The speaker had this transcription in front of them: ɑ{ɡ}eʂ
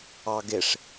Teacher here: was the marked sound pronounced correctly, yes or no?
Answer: yes